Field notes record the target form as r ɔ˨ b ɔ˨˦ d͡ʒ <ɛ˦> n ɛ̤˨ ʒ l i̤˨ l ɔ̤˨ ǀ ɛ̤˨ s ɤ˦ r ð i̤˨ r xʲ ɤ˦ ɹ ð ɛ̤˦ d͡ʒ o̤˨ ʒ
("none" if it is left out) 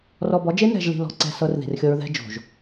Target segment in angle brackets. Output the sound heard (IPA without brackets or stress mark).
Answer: e˦